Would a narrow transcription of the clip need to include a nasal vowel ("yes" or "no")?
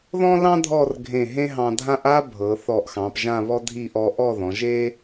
yes